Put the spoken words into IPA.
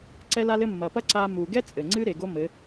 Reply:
ǀ ɛ˦ l a˦ l ɘ˦ mː ɐ˧ p ɐ˦ ǀ a˧ m u˨ ɡ ɛ˦ t͡sʼ ɘ˨ ŋ͡ǀ ɨ˦ ɾ e˨ ɡ o˦ m ɘ˨˦

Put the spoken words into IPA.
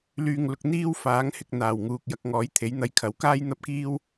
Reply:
l yː˨ ŋ l ʊ˨ k̚ n̪ iː˥ w f aː˨˥ ŋ h ɪ˧ k̚ n̪ aː˨˩ w ŋ uː˨ k̚ j ɐ˧ k̚ ŋ ɔː˨˥ j t̪ʰ e˨˥ j n̪ ɐ˧ j kʰ ɐ˨˥ w k aː˥ j n̪ ɐ˥ p̚ k iː˥ w

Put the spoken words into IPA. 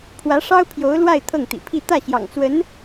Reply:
pʰ w ä˧˥ ʂ ɑ˥ ʊ̯ pʰ j o˧˥ ʊ̯ l w a˥˧ ɪ̯ t̪ʰ ɤ˥˩ ŋ t̪ ḭ˨˩ pʰ i˥˧ t̪ ä˥˩ ɕ j ɑ̰˨˩ ŋ t͡s w ə˧˥ n

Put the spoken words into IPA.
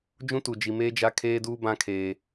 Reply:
d͡ʒ ũ˦ t u˨ d͡ʒ i˨ m eː˦ d͡ʒ a˦ kʰ eː˦ d uː˦ b ã˦ kʰ eː˨

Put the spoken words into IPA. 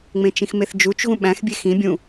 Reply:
ŋ͡m ẽ t͡ʃ ĩ x m e θ d͡ʒ u t͡ʃ ɣ ũ ɓ æ̃ x bʲ e x ĩ bʲ ũ

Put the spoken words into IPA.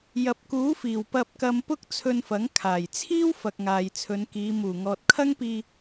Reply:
j ɐ˨ p̚ k uː˨˥ f iː˨˩ w p ɐ˧ p̚ k ɐ˧ m p ʊ˥ k̚ t͡sʰ ɵ˧ n f ɐ˨˥ ŋ kʰ aː˨˩ j t͡sʰ iː˥ w f ɐ˨ k̚ ŋ aː˨ j t͡sʰ ɵ˨˧ n k iː˨˧ m uː˨˩ ŋ ɔː˨ t̚ kʰ ɐ˥ ŋ p iː˧

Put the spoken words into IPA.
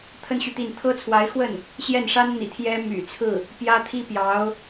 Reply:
t̪ʰ ə˥ n ɕ y˨ t̪ i˥˩ n t̪ʰ ɤ˥ t͡sʰ w a˧˥ ɪ̯ x w ə˥˩ n | ɕ j ɛ˥˩ n ʂ a˥ n n̪ ḭ˨˩ t̪ʰ j ɛ˥ m y̰˨˩ t͡sʰ ɹ̩˥˩ | p j ä˥ t̪ʰ i˥ p j ɑ˧˥ ʊ̯

